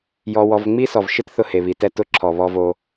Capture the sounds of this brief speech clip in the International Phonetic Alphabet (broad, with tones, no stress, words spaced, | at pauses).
jɔ˧wɔ˧v ŋ͡mi˦sɔ˨vʃɪ˦t θʊ˧ he˨βi˨tɛ˧ tʊ˧ǁʰɔ˨ βɔ˧vo˧